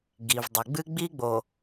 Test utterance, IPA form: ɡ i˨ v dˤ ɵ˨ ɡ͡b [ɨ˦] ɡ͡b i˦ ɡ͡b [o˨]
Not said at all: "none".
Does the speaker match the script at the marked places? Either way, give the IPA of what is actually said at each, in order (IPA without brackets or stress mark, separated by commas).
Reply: ɨ˦, o˨